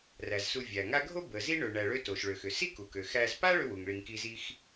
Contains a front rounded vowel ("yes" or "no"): yes